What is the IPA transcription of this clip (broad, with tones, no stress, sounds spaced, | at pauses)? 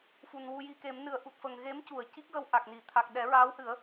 f u˨˩ n w u˧ j i˧ k e˨˩˦ m n ɨ˨˩˦ ə̯ ʔ u˨˩ t̚ f ə˨˩ ŋ ɣ e˧˥ m c u˨˩˨ ə̯ c i˦˥ k̚ ɣ ə˧ w ʔ a˨˩ k̚ n i˨˩˨ t̪ʰ a˨˩ k̚ ɗ ɛ˨˩˦ ɹ aː˧˥ w h ɨ˨˩˦ ə̯